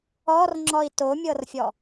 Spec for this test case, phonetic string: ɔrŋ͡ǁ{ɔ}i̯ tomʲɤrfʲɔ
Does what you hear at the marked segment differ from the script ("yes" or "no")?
no